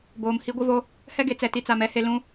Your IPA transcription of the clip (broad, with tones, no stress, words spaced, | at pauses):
boː˨mhi˦ɡʷɪ˦vo˦ | hɛ˦ɡe˨t͡sɛ˨ ti˨t͡sa˨mɛ˦he˨ lũ˦